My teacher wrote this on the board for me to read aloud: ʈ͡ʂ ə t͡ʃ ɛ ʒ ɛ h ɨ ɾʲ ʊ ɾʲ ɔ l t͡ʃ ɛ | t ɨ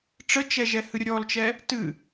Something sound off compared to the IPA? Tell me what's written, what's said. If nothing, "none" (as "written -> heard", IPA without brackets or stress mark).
none